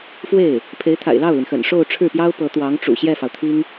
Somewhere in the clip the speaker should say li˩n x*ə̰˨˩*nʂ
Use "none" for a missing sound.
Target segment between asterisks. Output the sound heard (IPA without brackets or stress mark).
ə̰˨˩